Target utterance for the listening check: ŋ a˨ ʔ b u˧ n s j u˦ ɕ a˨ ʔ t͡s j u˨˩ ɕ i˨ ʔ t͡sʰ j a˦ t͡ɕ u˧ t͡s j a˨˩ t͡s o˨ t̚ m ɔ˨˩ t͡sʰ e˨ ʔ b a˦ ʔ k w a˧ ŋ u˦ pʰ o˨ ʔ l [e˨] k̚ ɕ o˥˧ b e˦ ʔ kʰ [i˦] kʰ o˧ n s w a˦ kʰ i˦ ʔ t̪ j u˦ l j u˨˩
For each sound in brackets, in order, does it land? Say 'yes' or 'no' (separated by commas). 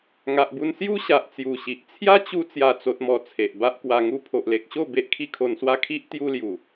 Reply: yes, yes